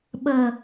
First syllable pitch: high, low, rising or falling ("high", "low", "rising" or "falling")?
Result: low